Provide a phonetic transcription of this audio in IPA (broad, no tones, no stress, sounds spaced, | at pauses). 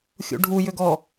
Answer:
xʲ ṵ ɖʱ u j ʏ ɡ ɔ